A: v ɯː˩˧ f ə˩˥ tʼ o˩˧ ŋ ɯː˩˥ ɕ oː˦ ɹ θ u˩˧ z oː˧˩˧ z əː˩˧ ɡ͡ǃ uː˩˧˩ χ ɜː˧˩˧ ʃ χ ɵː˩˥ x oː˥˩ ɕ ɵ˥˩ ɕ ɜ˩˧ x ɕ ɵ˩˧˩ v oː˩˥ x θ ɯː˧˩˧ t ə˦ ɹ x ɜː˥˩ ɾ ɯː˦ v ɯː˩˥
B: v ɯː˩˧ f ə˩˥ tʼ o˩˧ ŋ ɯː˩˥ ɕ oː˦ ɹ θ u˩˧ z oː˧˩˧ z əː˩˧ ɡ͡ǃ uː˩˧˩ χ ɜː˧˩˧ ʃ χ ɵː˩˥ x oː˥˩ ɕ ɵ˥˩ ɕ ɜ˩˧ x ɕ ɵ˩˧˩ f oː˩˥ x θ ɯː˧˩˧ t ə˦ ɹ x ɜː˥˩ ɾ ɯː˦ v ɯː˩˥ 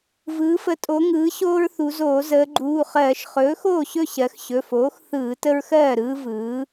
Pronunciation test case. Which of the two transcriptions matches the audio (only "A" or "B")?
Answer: B